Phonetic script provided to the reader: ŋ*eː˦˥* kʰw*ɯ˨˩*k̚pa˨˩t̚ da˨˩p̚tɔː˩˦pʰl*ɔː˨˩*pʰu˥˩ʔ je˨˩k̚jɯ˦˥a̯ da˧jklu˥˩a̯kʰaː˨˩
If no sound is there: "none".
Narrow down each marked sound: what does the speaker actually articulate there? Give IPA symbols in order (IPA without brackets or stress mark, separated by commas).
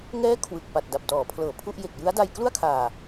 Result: ɛː˦˥, ɯ˨˩, ɤː˨˩